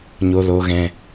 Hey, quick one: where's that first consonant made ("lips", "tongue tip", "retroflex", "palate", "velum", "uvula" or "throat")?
palate